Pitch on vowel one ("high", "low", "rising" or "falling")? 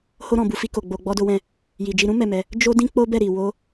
high